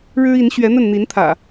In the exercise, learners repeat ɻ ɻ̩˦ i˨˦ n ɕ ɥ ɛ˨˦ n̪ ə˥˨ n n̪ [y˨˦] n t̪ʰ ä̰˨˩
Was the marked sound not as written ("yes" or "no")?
yes